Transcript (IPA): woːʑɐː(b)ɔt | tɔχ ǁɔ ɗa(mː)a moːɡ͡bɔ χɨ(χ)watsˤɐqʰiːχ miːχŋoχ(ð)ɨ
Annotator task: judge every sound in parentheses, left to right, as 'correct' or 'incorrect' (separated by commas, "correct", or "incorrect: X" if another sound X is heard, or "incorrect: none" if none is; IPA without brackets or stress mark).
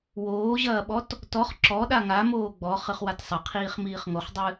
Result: incorrect: ɓ, incorrect: ŋ, correct, incorrect: dˤ